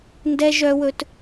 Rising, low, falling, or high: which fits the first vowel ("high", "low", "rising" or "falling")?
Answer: high